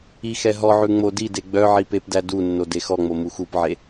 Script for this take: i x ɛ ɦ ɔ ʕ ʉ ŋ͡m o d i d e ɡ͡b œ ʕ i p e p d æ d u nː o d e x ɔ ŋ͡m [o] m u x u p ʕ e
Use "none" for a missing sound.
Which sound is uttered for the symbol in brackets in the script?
o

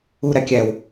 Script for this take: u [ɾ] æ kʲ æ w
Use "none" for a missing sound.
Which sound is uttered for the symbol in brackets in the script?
ɾ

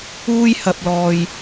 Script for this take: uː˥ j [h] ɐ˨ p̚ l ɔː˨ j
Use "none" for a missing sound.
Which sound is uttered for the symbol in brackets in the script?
h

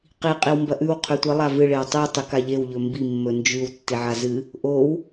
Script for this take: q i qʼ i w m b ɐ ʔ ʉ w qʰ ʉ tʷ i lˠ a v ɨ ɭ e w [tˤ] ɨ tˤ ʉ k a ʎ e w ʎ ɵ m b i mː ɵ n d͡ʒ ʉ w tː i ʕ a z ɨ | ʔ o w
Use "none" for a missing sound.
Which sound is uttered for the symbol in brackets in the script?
tˤ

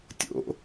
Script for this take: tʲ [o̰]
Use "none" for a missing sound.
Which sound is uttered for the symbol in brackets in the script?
o̰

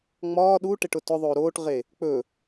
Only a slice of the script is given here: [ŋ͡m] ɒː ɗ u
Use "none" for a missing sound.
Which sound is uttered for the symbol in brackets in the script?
ŋ͡m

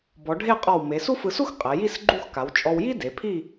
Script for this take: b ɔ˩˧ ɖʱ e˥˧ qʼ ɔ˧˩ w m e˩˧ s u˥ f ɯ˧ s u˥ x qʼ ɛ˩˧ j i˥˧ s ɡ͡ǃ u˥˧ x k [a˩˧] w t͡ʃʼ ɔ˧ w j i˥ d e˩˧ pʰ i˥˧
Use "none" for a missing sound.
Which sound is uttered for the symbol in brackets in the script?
a˩˧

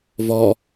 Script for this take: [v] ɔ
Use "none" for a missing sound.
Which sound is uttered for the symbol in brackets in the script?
v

